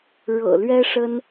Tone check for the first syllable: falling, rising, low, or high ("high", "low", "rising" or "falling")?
low